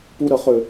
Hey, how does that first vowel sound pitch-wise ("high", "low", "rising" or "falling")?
high